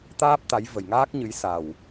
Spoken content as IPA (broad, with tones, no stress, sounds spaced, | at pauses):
t̪ aː˦˥ p̚ t̪ a˨˦ j v ə˨˩ j ŋ aː˦˥ k̚ ɲ ɨ˨˦ j s a˨˩ w